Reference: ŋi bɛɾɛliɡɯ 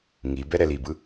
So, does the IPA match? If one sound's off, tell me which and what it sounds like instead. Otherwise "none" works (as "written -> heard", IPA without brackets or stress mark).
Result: ɡ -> b